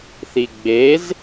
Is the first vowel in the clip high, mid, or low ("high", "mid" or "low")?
high